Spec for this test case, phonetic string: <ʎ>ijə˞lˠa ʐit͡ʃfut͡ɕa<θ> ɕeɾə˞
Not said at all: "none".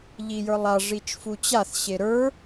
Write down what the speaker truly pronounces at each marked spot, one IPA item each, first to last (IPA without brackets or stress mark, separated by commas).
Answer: ʎ, θ